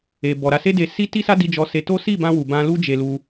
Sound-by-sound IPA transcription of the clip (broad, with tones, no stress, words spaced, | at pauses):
e˨ bɔ˨ɾa˧se˦de˧ si˦ ti˦sa˦ di˧d͡ʒɔ˧se˧to˦ si˦˨bã˧wu˨ bã˧lu˦d͡ʒe˧lu˧